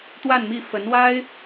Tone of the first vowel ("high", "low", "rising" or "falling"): falling